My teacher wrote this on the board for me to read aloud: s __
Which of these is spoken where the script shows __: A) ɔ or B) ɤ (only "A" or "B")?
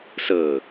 B